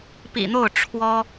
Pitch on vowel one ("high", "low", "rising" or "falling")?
low